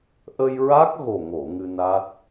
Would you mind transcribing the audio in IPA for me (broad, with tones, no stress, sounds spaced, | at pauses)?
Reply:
ʔ ə˧ j ɹ a˦˥ k̚ ɣ o˨˩ ŋ o˨˩˨ ŋ ɨ˧ n a˦˥ t̚